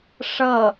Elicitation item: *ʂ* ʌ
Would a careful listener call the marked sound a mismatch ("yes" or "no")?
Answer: no